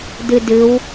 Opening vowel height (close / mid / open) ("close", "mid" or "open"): close